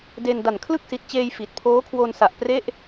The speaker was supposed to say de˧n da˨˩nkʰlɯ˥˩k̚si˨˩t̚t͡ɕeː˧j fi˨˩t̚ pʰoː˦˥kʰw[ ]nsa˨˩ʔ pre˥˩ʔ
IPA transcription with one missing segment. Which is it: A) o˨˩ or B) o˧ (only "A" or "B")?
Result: B